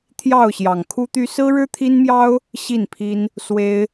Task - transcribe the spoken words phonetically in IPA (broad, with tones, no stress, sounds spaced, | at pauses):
t̪ʰ j ɑ˥˨ ʊ̯ ɕ j ɑ˨˩ ŋ kʰ u˦ t̪ y˦ s ɹ̩˦ ɻ ɻ̩˦ t̪ʰ i˦ n m j ɑ˦ ʊ̯ | ɕ i˥˨ n pʰ i˦ n | s w e˦ ɪ̯